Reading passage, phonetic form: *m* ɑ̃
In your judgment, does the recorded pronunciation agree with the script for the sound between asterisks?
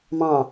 yes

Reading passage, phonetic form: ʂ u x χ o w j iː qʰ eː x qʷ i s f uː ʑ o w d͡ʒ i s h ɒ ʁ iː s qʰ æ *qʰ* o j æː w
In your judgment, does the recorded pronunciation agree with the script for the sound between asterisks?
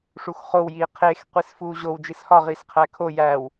no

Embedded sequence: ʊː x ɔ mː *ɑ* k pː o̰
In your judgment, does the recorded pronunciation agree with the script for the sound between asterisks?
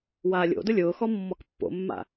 no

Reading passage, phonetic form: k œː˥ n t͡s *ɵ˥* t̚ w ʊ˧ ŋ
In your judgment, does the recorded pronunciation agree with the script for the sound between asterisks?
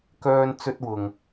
yes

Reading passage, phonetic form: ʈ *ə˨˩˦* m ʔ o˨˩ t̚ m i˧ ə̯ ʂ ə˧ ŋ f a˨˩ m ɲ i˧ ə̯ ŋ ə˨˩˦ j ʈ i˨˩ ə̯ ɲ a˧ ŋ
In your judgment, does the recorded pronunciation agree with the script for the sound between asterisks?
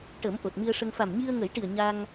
yes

